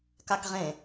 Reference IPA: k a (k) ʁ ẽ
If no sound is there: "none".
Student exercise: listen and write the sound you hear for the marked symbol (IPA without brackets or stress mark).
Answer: k